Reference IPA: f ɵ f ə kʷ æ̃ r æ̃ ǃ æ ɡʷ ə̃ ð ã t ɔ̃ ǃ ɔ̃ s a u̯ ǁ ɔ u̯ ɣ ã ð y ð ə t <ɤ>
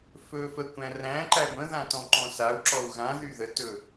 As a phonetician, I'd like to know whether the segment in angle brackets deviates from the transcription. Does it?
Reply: yes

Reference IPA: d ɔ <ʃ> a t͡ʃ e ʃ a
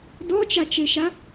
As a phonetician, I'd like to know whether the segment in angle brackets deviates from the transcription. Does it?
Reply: yes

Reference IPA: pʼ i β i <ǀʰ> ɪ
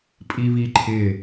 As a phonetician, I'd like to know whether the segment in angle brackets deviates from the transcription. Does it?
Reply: yes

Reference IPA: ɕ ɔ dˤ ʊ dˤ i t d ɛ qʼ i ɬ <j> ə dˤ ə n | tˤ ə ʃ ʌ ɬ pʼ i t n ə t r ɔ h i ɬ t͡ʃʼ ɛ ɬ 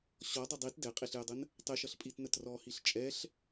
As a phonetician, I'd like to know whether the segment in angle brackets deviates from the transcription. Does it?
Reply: no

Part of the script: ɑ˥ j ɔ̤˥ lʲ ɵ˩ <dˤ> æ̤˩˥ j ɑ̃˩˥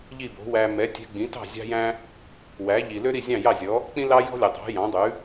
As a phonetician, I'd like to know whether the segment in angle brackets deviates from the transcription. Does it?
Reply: no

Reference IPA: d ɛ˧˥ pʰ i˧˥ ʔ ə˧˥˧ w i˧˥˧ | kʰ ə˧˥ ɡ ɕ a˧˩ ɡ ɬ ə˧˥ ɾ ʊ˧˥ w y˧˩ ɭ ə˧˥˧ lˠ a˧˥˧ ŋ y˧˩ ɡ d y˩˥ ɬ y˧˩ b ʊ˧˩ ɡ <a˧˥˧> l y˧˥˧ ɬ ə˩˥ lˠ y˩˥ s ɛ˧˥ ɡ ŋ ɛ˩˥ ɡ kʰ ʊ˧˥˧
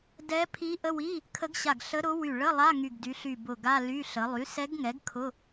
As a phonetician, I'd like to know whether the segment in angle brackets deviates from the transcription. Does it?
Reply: no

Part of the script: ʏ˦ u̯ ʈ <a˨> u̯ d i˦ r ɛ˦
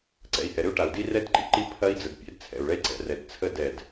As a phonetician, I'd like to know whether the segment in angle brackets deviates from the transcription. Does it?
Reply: no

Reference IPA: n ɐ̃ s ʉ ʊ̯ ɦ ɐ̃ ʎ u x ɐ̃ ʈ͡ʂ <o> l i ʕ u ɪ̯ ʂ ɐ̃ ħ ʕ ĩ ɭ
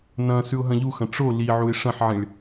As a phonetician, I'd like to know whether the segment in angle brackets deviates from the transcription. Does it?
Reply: no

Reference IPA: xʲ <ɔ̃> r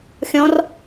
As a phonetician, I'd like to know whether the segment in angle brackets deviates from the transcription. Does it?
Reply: no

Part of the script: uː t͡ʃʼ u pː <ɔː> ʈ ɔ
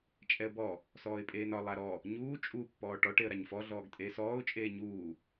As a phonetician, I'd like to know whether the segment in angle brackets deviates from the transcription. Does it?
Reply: no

